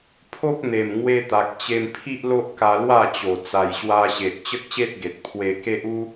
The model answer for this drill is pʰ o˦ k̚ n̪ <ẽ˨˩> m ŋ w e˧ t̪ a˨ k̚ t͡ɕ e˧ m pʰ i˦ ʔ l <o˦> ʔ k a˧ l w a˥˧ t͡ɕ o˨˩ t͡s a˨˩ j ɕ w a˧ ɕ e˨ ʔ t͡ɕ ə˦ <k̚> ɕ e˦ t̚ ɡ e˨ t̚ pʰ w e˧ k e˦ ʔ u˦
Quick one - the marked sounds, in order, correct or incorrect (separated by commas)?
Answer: incorrect, correct, correct